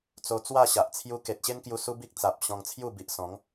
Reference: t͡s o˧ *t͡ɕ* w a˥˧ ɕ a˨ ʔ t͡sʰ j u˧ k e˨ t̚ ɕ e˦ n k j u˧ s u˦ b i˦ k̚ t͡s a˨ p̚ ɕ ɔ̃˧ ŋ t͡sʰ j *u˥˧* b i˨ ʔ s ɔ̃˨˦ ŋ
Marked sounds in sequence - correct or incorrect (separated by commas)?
incorrect, correct